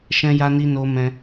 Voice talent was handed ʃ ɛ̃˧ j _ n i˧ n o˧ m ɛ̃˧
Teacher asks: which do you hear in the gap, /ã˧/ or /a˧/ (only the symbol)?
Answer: a˧